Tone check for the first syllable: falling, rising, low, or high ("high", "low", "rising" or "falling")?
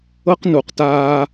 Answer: high